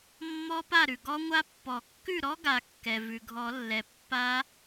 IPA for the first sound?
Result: mː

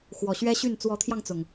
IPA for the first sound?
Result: x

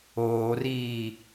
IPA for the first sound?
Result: oː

